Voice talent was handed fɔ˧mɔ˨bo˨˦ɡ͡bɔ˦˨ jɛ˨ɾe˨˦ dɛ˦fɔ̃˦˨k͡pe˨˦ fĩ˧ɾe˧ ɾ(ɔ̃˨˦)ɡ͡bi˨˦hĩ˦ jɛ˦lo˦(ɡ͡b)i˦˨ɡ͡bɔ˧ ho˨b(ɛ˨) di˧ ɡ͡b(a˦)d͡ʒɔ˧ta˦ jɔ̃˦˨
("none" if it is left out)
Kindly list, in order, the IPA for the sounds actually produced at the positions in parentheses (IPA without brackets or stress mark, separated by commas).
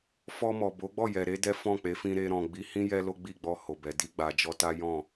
ɔ̃˨, ɡ͡b, ɛ˨, a˨